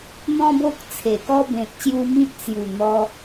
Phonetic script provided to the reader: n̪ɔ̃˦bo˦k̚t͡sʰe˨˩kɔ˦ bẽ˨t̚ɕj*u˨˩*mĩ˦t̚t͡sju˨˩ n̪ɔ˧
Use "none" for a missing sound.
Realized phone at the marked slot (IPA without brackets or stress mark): u˧